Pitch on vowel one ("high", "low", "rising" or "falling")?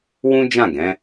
high